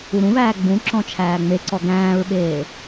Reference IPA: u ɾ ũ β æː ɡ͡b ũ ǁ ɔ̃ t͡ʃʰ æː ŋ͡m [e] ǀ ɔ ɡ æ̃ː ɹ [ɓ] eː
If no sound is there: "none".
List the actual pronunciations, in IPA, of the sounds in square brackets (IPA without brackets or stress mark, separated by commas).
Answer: e, ɓ